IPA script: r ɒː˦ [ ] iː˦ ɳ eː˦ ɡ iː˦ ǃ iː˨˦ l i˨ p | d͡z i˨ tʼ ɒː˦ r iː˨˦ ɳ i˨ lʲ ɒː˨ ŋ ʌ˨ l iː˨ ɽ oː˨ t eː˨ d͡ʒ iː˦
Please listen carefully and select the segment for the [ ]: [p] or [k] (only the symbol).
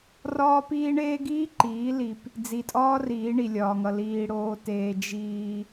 p